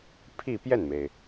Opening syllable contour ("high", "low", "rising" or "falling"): falling